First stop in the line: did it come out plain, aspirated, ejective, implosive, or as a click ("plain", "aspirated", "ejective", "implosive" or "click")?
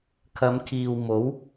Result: aspirated